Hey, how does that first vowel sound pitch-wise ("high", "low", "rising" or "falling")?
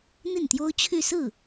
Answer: falling